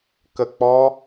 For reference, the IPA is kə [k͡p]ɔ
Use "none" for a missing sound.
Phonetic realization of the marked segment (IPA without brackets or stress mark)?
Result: k͡p